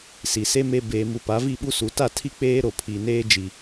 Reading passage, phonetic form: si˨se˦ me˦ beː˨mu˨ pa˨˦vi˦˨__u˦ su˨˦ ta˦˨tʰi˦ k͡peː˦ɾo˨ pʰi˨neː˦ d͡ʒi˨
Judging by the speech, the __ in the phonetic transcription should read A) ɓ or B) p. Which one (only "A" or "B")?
A